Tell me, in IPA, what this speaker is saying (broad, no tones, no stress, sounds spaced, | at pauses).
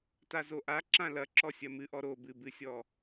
t a z o ʔ a ǁ ã l ɐ ǁ ɔ sʲ ɐ m ɨ ʔ ɔ ɾ o b ɨ b ɨ sʲ ɔ